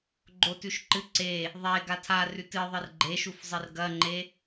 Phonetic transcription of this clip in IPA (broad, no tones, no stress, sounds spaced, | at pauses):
ɡ͡ǃ o t ʉ ʃ ǃ ɨ ǀ e | ðˤ e ɡ a tʰ a r ʉ t ɨ ðˤ ɨ r ɡ͡ǃ e ʃ u f zˤ ɨ r ɡ ɐ ŋ͡ǃ e